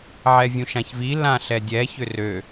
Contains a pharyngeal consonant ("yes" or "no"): yes